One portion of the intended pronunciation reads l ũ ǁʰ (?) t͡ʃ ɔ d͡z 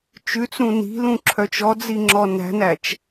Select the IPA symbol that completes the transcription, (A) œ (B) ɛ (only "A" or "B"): A